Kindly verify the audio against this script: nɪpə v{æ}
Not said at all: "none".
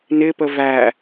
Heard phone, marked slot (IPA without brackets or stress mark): æ